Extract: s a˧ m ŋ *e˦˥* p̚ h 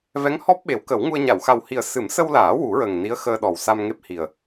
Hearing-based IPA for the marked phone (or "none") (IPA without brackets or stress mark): e˦˥